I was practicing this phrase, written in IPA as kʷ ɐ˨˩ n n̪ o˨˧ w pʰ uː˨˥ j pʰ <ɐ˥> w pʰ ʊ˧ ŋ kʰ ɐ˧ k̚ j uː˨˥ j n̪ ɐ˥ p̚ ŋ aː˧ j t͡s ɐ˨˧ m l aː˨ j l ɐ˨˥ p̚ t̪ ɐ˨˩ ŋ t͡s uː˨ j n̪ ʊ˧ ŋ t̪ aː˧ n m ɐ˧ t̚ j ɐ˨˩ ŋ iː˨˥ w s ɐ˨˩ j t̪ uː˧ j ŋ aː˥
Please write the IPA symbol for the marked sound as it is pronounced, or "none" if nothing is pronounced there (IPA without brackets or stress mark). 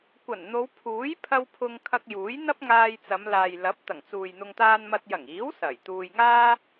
ɐ˧